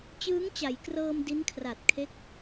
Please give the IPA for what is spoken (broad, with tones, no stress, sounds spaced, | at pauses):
t͡ɕ ɯː˦˥ ŋ t͡ɕ a˩˦ j k r ɤː˧ m d i˦˥ n kʰ r a˨˩ t̚ kʰ e˦˥ k̚